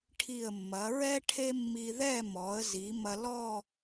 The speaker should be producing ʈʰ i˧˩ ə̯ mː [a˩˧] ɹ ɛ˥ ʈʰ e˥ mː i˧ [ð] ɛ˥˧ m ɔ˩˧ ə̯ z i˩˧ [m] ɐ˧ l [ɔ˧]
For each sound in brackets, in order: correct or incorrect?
incorrect: ɐ˩˧, correct, correct, incorrect: ɔ˥˧

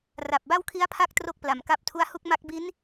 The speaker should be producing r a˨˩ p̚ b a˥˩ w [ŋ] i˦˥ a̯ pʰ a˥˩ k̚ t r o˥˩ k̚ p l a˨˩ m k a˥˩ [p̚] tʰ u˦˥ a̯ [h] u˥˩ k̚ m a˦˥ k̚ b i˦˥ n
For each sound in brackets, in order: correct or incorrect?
incorrect: kʰ, correct, correct

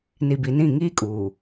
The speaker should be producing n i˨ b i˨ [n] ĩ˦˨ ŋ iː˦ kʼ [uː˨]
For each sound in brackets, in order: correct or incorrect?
correct, correct

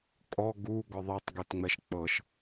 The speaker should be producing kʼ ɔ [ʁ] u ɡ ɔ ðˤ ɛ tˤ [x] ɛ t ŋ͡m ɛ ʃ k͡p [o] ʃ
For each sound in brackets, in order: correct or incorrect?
incorrect: ɡ, incorrect: ɡ, incorrect: ɤ

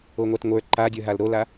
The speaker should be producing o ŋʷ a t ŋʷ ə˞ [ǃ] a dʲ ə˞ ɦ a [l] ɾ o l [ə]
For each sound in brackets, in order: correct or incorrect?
correct, correct, incorrect: a

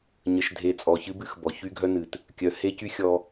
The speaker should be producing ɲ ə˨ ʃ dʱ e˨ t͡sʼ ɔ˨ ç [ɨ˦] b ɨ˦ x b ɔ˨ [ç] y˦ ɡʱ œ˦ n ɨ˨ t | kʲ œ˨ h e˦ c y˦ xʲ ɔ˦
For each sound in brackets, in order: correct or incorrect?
correct, correct

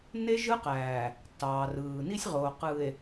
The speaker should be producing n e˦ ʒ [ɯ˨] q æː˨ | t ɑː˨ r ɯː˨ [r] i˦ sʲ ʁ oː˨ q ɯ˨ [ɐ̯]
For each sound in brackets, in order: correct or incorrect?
incorrect: ɯ˦, incorrect: n, incorrect: e̯

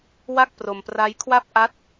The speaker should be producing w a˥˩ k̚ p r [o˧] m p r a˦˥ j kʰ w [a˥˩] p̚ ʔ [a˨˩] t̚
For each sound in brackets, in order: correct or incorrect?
correct, correct, incorrect: a˦˥

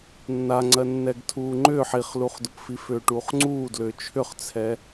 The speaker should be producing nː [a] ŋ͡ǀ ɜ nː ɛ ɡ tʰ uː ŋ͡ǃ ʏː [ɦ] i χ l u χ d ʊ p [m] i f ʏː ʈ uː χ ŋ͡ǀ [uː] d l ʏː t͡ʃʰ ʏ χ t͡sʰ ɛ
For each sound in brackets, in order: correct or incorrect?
correct, incorrect: ħ, incorrect: f, correct

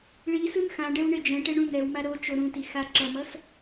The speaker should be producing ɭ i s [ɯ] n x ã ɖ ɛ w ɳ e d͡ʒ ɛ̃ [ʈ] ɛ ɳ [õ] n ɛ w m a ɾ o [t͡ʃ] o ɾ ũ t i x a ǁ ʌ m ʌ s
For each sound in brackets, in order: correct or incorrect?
correct, correct, incorrect: ũ, correct

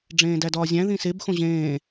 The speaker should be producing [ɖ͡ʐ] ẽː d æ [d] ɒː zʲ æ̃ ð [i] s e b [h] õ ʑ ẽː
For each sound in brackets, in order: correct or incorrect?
correct, correct, incorrect: ĩ, incorrect: x

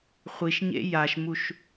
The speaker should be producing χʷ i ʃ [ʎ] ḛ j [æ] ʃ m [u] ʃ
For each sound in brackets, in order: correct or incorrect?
incorrect: ɲ, incorrect: a, correct

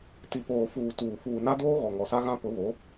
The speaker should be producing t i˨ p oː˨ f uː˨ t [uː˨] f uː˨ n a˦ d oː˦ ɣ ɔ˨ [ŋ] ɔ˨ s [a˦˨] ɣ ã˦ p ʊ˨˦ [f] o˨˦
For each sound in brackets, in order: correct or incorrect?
correct, correct, incorrect: a˦, incorrect: β

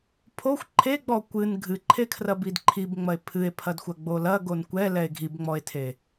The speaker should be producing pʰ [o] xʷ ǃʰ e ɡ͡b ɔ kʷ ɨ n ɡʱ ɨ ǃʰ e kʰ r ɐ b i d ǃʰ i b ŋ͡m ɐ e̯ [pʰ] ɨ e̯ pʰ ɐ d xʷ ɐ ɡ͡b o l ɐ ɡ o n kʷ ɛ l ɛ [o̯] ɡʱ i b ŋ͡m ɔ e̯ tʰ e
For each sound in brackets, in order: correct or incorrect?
correct, correct, incorrect: e̯

